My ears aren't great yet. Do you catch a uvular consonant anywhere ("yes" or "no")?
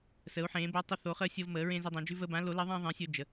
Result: yes